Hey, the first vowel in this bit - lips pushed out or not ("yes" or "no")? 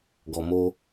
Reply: yes